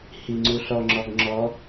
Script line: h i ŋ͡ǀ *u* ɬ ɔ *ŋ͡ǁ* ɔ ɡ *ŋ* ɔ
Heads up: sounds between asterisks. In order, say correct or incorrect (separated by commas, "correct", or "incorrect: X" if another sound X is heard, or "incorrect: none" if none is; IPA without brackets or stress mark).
correct, correct, incorrect: ŋ͡ǁ